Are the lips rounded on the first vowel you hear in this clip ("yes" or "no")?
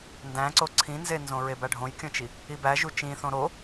no